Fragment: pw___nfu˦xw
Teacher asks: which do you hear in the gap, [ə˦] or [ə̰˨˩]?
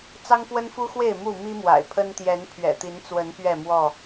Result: ə˦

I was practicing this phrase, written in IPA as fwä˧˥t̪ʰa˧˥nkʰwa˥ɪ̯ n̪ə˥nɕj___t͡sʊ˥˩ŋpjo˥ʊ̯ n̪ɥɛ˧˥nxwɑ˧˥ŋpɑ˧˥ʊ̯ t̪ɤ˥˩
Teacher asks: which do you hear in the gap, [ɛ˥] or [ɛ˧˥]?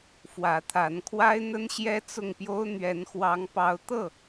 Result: ɛ˥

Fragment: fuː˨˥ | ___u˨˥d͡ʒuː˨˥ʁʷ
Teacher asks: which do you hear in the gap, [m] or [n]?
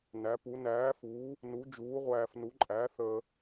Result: n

